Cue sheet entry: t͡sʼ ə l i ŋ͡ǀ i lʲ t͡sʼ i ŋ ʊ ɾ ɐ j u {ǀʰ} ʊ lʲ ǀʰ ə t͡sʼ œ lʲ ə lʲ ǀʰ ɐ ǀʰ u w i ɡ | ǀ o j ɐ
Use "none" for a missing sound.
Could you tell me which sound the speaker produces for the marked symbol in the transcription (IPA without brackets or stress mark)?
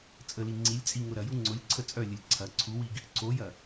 ŋ͡ǀ